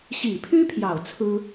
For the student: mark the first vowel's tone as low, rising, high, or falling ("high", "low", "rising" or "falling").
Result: low